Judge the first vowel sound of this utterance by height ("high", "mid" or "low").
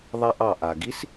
low